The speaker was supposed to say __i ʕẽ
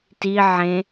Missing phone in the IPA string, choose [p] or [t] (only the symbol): t